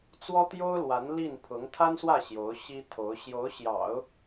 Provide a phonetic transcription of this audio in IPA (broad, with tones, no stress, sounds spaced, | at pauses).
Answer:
t͡s w ɔ˥ t̪ j o˥ ʊ̯ l w a˧˥ n l i˥˩ n pʰ ʊ˧˥ ŋ t̪ʰ a˥ n s w ä˥˩ ɕ j o˧˥ ʊ̯ ɕ i˥ t̪ʰ o˧˥ ʊ̯ ɕ j o˧˥ ʊ̯ ɕ j ɑ̰˨˩˦ ʊ̯